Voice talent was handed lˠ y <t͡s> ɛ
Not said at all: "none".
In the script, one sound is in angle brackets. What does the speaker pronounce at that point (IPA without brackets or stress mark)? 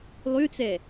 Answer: t͡s